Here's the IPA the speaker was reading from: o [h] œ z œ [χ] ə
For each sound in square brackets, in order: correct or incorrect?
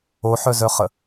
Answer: incorrect, correct

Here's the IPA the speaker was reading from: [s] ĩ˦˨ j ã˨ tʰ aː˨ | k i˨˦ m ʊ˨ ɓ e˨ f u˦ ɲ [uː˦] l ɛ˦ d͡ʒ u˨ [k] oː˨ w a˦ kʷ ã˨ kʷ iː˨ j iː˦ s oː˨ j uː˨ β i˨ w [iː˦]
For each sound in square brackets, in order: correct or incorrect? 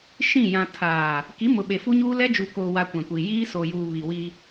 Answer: incorrect, correct, correct, incorrect

